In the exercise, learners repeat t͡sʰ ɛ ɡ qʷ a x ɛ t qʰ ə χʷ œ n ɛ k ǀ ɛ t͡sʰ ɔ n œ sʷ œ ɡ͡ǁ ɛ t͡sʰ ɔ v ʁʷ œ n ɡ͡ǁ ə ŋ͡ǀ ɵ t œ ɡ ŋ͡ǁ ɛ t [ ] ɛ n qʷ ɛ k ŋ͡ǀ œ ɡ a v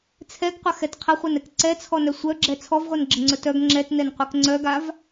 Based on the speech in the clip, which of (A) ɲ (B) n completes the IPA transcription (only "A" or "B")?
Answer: B